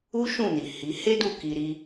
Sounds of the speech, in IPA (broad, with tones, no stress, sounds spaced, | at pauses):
u˦ ʃ ũ˦˨ n i˨ h i˨˦ h e˦ d u˦˨ k i˧ ɾ i˦